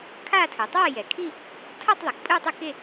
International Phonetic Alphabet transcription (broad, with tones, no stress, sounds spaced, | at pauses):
kʰ a˥˧ tʰ ɯ˩ tˤ a˥˧ j ɛ˩ kʰ i˥˧ | tʰ ʌ˥˧ tˤ ðˤ e˩ k pʼ ɯ˥˧ tˤ ɯ˥˧ k e˥˧